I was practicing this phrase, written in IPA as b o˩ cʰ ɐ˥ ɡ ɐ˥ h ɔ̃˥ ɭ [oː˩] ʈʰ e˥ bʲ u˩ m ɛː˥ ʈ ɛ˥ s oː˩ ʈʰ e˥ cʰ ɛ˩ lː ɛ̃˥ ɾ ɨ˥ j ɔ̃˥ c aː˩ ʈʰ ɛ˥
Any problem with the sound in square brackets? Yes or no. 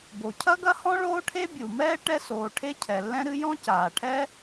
yes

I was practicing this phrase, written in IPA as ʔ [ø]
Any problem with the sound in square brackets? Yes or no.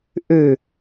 no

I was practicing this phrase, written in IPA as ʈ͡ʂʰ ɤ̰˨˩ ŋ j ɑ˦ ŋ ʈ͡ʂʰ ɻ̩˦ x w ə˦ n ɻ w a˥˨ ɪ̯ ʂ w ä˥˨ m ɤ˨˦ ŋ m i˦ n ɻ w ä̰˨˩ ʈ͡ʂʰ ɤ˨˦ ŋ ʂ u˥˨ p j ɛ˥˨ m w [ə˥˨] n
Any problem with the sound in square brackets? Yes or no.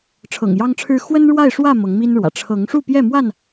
yes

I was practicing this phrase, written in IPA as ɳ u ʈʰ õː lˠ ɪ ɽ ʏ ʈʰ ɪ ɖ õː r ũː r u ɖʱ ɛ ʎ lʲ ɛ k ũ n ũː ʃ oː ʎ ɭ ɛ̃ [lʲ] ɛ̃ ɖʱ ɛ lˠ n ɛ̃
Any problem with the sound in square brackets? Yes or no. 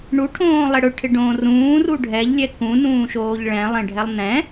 yes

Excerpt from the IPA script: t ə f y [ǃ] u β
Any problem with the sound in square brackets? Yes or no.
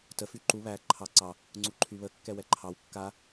no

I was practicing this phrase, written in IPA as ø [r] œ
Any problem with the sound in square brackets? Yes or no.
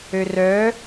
no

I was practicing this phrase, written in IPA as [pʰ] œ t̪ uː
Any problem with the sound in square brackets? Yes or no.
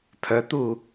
no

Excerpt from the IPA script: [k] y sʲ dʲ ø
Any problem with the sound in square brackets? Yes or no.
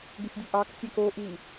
yes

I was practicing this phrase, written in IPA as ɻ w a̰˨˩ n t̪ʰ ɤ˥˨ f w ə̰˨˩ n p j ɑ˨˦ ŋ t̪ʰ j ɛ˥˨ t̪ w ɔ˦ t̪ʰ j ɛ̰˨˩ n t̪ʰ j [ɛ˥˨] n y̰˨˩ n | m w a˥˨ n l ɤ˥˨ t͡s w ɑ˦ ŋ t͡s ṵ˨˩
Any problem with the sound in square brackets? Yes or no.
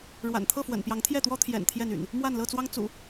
no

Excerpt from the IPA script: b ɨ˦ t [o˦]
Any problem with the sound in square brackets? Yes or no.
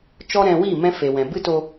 yes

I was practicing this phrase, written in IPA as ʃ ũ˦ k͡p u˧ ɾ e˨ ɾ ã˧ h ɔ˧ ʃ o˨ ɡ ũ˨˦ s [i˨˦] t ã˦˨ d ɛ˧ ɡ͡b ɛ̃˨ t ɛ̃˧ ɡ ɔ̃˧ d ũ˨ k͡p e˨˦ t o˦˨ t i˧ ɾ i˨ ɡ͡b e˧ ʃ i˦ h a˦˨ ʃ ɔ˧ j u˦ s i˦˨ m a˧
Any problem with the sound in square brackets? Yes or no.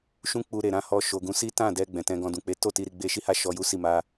yes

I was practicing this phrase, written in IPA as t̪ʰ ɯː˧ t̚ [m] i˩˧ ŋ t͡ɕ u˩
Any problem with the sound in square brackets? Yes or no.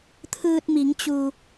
no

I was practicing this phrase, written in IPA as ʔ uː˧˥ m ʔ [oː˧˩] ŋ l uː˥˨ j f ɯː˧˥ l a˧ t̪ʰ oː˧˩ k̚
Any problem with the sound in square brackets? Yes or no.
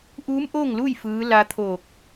yes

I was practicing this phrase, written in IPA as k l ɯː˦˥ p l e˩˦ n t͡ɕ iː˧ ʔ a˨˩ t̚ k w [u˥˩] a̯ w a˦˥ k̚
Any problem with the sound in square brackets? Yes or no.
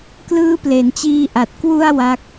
yes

